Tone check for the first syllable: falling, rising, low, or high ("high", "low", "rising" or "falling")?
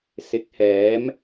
rising